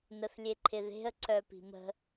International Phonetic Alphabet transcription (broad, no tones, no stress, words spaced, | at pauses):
nəθlʲeǃʰɪðe̤ə̯ ǀœpi̤mə̤